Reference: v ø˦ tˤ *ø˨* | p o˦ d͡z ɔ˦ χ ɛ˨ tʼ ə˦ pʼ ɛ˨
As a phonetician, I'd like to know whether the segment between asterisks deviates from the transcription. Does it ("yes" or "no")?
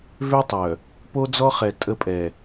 yes